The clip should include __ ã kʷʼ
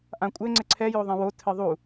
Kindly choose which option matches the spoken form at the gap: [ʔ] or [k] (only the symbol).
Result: ʔ